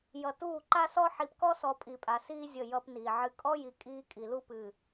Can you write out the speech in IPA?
j ʌ˨ t uː˦˨ ǃ a˦ s ɔ˦ ħ i˨ p k ɔ˦ s ɔ˨ pʼ i˨ pʼ a˨ s iː˦ zʲ ə˦˨ j ʌ˦ p n iː˨ ʕ ɨ˨ kʼ ɔ˦ j i˨ kʼ iː˦ kʼ i˨ l u˦ p ɨː˨

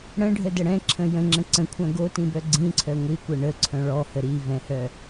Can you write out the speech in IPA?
ɽ ə̃ ɖʱ ə d ə ɽ ɛ̃ ǁʰ ə̃ j ə̃ ŋ͡ǁ ə̃ ǀ ə̃ kʷʰ œ̃ ɡ o t ĩ b œ ɡ͡ǀ ĩ ǀʰ œ ŋʷ i kʷ ɤ ɳ ə ǀʰ œ̃ ɭ ɔ h ə ɾ i v ɛ̃ h œ

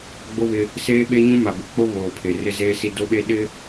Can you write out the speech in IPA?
ɡ͡b o˦ β ɪ˦ | s eː˦ ɓ e˦ ɲ ũ˦ m a˨ b ɪ˨ k͡p o˦ β oː˨ pʰ e˨ r ɪ˦ z eː˦ s i˦ d o˦ ɓ e˦ ɗ ɪ˦

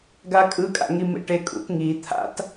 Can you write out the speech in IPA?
ɡ a kʼ ɯ kʼ a̰ ŋ i m ḛ ʈ e kʼ ṵ t ŋ i t̪ʰ a̰ t

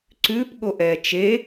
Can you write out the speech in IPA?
ǀ ʉ p ɠ o ʔ ɛː t͡ʃ e

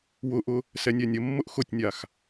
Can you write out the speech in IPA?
w ʊ ʔ ʊ | s ɛ nʲ ɛ nʲ ə mː ʊ ʔ x ʊ tʲ nʲ a x

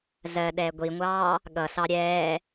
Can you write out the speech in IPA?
z ɜ ɗ ɛː ɡʷ i ŋʷ ɑː | ɠ ʌ s ɑ ɾʲ ɛː

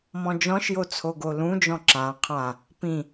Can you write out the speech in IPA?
m ɔ̃ d͡ʒ ɔ̃ ʃ j o t͡sʰ o ɡ o l ũ d͡ʒ ɔ̃ ǁ ã qʰ ã | p ĩ

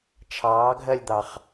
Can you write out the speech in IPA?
t͡ʃʰ ɑː ɡʱ ɜ lʲ d̪ ɑ χ

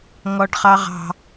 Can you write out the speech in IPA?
ŋ ɔ ɖ χ ɑ ʁ ɑ̤

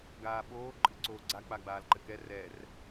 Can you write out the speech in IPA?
ɡ aː ɓ oː ǃʼ ɨ ǀ oː ɡ͡ǀ a k͡p a ɡ͡b aː l ǃ ɘ k ɛ r ɛ r

